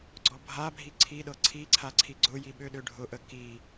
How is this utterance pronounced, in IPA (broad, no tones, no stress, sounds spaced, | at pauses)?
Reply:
ɡ͡ǀ ɔ bʱ a bʱ i ǀʰ i ɗ ɤ ǀʰ i ǀʰ a ǀʰ i ɡ͡ǀ ʊ j i ɓ ø ɗ ø ɖʱ ʊ ʔ ə k i